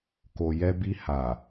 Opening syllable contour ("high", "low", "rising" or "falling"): low